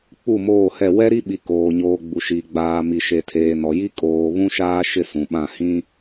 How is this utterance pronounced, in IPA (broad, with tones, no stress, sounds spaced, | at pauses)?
k͡p u˦˨ m oː˦˨ h ɛ˦˨ w ɛ˦ ɾ i˦ ɓ i˨ k oː˨ ɲ oː˨ ɡ͡b u˨ ʃ i˨ ɡ͡b aː˨ m i˨ ʃ e˨ tʰ eː˨ n ɔ˨ j i˦ kʼ oː˨ β ũ˦ ʃ aː˦ ʃ ɪ˦˨ s ũ˨ ɓ ã˦˨ h ĩ˦